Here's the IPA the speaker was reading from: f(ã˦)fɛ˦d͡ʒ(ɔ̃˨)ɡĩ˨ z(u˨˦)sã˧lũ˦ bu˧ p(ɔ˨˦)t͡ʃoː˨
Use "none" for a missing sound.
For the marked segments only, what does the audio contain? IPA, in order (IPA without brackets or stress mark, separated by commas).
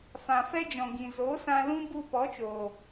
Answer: ã˨, ɔ̃˨, o˨˦, ɔ˨˦